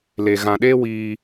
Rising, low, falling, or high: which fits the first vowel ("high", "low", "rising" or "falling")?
low